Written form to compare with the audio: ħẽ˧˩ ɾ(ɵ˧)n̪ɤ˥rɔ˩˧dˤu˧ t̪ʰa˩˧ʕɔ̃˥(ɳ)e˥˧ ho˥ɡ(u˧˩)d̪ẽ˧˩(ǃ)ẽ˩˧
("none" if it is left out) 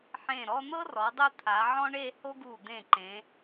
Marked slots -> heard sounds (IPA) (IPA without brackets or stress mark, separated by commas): ɔ˧, ɳ, u˧˩, ǃ